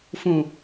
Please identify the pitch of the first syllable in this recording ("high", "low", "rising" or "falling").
low